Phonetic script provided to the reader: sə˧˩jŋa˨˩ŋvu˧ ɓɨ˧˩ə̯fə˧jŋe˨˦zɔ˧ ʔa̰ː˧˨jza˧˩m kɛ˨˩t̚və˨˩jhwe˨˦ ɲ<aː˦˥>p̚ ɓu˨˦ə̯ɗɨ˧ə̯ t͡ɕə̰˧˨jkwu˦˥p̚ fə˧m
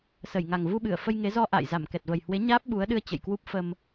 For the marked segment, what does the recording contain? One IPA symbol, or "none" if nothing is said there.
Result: aː˦˥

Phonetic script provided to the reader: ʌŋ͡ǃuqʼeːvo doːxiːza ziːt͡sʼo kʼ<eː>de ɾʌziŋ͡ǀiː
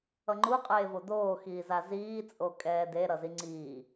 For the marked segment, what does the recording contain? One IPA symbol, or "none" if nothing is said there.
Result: ɛː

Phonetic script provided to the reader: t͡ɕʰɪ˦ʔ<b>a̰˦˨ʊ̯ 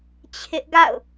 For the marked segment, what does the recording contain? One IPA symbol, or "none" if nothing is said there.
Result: ɡ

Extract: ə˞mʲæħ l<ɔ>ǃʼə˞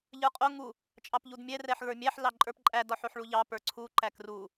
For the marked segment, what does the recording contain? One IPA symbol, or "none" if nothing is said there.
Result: ɑ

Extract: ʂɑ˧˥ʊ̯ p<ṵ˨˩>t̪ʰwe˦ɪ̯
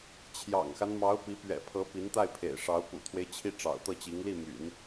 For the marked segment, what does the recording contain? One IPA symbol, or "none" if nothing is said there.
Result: ṵ˨˩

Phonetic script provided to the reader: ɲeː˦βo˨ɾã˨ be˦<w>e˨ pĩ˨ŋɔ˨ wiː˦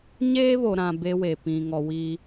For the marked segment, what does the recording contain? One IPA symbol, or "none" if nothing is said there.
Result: w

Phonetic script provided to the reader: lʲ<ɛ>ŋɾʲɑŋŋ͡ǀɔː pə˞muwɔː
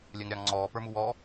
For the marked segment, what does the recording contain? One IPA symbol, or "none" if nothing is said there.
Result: ɛ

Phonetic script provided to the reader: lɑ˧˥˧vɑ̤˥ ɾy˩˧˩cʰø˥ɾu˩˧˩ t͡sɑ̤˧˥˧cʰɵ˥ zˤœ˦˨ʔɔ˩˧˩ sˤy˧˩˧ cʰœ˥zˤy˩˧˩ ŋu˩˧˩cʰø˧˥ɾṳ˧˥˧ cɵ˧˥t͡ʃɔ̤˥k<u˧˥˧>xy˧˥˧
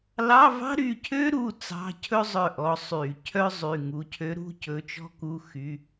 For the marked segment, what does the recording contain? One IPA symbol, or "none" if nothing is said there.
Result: u˧˥˧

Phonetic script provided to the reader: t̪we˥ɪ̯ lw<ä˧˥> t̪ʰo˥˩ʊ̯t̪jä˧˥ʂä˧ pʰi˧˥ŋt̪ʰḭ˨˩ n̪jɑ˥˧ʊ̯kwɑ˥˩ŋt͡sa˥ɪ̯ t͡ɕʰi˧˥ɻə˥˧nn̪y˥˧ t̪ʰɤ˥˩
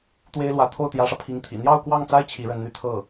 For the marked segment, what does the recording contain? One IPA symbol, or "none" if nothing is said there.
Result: ä˧˥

